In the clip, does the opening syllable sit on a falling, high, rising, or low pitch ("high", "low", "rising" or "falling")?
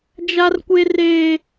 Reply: high